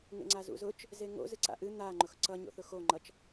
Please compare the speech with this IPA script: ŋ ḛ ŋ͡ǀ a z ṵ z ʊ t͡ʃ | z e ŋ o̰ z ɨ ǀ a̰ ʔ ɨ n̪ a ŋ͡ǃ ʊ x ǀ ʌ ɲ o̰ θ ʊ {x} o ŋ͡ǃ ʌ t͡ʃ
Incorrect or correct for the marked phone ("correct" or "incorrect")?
correct